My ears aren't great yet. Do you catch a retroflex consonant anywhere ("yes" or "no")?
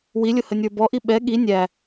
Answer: no